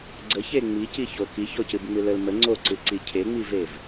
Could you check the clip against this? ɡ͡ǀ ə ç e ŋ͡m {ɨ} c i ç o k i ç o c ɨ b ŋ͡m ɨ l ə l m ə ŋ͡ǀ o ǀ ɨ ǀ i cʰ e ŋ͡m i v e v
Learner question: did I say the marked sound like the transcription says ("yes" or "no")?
no